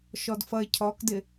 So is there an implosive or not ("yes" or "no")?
no